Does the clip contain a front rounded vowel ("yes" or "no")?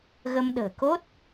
no